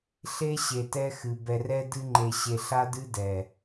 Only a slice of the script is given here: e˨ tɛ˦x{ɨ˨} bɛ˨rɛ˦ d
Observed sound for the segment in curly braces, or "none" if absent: ɨ˨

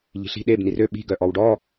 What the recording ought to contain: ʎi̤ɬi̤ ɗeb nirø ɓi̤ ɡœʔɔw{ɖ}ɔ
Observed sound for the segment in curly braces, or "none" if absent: ɖ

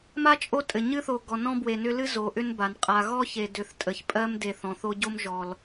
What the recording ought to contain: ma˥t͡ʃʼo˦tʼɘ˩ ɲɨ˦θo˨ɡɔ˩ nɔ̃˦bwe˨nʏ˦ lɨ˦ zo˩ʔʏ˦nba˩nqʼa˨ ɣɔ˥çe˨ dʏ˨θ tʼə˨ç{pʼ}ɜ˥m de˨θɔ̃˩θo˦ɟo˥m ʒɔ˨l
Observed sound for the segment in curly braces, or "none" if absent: pʼ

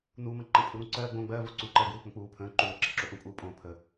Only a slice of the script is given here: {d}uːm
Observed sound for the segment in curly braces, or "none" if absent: n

